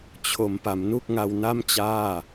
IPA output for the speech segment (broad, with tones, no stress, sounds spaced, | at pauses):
t͡ɕʰ o˩˦ m p a˩˦ m n u˥˩ k̚ ŋ a˧ w n a˥˩ m t͡ɕ aː˥˩